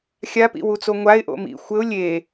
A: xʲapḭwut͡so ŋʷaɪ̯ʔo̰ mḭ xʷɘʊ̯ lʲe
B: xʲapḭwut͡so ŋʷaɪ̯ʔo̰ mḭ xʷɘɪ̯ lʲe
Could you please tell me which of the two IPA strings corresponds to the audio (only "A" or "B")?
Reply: A